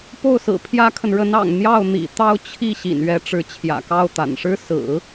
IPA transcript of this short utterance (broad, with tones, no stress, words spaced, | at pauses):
po˥˩ʊ̯sɹ̩˨˩pʰjä˥kʰə˨n ɻə˧˥nɑ̰˨˩ŋ n̪jɑ˥˩ʊ̯n̪ḭ˨˩t̪ɑ˥˧ʊ̯ t͡ɕʰi˥˩ ɕḭ˨˩nɥɛ˧˥ʈ͡ʂɻ̩˧˥ t͡ɕʰjä̰˨˩kɑ˥˩ʊ̯t̪a̰˨˩n ʂɻ̩˥sɹ̩˨˩˦